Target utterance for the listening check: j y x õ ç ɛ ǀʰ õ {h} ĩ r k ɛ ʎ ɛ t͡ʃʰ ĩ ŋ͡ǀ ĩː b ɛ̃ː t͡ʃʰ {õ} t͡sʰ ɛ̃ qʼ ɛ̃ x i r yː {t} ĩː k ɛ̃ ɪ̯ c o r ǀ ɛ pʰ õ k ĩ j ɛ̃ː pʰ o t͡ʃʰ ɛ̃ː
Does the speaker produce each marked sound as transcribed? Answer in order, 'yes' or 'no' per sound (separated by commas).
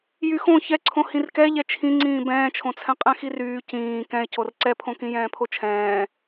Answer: yes, yes, no